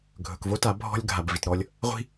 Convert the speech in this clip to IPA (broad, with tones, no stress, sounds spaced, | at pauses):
ɡʱ ɵ˨ k v o˦ t a˨˦ bʱ ɔ̤˦ lʲ ɡʱ a˨ b v i˨ t ɾ ɔ˦ lʲ | ʁʷ i̤˦